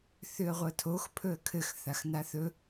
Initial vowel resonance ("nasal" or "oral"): oral